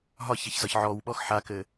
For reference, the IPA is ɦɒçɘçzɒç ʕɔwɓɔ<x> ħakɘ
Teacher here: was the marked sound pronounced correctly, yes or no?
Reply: yes